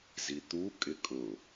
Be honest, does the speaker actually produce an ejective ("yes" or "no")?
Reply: yes